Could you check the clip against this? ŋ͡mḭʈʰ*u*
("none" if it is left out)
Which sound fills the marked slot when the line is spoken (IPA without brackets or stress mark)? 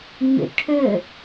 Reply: ʏ